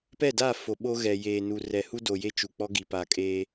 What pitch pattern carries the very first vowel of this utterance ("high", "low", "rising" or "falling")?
falling